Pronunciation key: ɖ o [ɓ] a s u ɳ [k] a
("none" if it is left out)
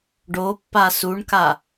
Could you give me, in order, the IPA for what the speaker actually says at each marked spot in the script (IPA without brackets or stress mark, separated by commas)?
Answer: pː, k